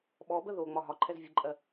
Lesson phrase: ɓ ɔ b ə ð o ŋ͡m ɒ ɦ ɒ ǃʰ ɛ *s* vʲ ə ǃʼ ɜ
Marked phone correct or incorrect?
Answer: incorrect: z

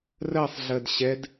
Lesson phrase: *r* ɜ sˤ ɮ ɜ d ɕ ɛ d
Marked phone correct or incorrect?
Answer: correct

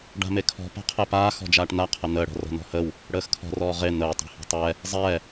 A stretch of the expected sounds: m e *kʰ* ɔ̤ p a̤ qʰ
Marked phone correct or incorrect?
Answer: correct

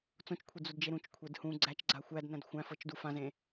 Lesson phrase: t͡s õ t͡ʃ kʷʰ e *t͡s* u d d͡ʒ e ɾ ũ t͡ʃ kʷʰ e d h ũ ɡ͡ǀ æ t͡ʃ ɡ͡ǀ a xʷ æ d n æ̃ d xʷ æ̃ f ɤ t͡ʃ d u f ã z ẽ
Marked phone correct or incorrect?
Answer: incorrect: d͡z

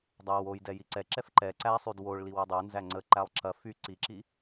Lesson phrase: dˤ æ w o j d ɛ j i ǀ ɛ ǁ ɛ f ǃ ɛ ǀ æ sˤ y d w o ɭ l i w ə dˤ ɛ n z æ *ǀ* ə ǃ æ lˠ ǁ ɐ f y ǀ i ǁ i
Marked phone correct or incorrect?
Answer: incorrect: ŋ͡ǀ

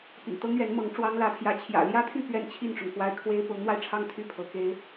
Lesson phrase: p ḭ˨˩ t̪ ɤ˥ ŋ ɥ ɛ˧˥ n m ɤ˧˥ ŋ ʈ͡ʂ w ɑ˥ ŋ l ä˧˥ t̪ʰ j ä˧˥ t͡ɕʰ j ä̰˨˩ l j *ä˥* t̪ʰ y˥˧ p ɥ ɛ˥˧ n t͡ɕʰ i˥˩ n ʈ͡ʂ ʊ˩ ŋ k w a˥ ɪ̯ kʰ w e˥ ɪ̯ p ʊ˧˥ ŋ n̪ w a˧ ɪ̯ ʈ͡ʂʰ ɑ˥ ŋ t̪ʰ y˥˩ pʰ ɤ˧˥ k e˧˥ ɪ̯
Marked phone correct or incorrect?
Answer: correct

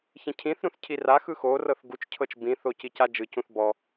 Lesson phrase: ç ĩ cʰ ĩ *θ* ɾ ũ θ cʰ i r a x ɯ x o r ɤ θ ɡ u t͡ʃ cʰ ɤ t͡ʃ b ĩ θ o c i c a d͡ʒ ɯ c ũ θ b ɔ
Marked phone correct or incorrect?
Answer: correct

